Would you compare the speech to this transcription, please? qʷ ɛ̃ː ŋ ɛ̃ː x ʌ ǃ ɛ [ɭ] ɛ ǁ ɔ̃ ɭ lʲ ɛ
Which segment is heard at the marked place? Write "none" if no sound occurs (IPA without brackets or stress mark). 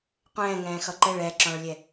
ɭ